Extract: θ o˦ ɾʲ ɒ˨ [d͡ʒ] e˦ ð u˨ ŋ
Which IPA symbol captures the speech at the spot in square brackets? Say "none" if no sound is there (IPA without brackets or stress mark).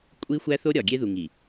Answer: ɡʲ